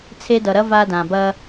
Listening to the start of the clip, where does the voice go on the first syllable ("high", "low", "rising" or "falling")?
high